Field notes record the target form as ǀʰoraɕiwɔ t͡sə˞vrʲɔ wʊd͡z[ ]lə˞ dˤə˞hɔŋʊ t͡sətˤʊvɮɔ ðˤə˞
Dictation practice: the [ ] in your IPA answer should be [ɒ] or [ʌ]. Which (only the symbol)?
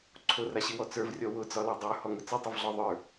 ɒ